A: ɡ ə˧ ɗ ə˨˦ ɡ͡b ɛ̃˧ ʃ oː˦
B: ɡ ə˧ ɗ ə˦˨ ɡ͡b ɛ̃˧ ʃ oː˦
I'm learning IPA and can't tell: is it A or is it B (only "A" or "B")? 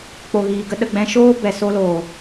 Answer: B